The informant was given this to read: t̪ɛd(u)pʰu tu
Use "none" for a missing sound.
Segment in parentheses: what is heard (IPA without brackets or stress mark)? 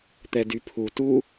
y